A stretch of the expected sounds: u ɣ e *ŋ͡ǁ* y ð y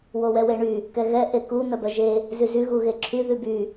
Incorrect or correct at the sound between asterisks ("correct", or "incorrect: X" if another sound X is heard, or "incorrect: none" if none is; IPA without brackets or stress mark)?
incorrect: ǁʰ